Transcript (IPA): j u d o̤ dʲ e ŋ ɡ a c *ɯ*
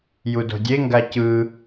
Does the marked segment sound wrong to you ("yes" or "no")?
no